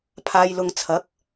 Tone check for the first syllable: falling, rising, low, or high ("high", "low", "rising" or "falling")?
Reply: low